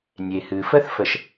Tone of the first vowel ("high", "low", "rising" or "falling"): low